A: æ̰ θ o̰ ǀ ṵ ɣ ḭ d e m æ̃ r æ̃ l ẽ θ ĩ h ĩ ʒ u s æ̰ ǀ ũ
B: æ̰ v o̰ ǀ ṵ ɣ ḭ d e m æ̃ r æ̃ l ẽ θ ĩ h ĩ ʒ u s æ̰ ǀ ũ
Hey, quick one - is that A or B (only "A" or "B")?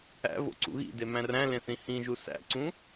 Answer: B